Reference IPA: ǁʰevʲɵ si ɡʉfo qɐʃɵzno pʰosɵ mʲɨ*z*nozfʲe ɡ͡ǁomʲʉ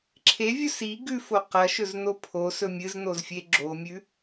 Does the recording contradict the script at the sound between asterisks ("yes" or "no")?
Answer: no